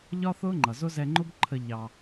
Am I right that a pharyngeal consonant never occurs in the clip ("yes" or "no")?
yes